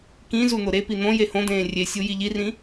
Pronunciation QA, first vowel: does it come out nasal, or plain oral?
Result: nasal